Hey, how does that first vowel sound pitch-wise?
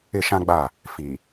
falling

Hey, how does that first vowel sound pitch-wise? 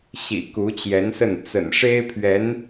low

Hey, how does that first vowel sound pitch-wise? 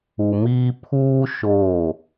low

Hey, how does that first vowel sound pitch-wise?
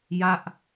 falling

